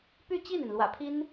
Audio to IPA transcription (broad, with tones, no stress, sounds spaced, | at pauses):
p y˥˧ t͡ɕ i˥˩ n i˩ n l w ä̰˨˩ pʰ i˥ n